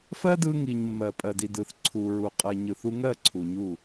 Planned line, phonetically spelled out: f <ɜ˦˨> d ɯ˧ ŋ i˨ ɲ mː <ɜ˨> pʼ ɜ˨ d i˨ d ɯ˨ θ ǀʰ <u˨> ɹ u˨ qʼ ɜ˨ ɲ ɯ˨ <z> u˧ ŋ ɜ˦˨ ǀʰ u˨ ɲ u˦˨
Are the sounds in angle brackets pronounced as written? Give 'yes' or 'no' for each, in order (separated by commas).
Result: no, yes, yes, no